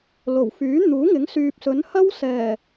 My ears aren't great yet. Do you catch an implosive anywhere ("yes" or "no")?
no